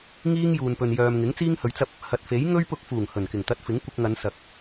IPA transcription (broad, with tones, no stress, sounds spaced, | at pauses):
ŋ iː˥ ŋ j uː˨ n p ɵ˨ n j œː˨ m ŋ ɪ˨˥ ŋ t͡s iː˥ ŋ h ɵ˨˧ ɥ t͡s ɐ˥ p̚ | h ɐ˨ t̚ f e˨˥ j ŋ ɵ˥ ɥ p ʊ˧ k̚ f uː˨˩ ŋ h ɵ˨˩ n k ɪ˨˩ ŋ t̪ ɐ˧ t̚ f ɪ˨˥ ŋ kʷ ɪ˧ k̚ ŋ ɐ˨˧ n s ɐ˨ k̚